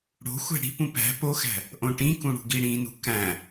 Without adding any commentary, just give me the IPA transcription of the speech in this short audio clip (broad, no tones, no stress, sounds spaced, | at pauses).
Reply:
ɽ o̤ xʷ æ̤ ɽ i̤ p ũ p æ̤ p o x æ̤ | ʔ õ ʈ ĩ k ũ ɽ ṳ ɡ i ɽ ĩ n ṳ k æ̃